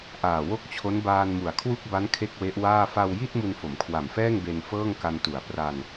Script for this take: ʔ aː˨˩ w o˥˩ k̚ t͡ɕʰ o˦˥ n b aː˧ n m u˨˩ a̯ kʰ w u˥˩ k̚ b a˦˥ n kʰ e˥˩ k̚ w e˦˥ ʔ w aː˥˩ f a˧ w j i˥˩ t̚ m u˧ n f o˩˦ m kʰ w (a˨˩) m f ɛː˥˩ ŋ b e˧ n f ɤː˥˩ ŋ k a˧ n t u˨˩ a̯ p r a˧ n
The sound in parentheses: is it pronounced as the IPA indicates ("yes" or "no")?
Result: yes